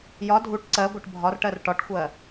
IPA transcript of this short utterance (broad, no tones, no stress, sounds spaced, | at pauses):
j ɒ dʱ u ʈ ǀ ɜ ɡʷ ɤ ʈ bʱ ɒ r ʈ ɜ r ʈ ɒ ʈ xʷ ɜ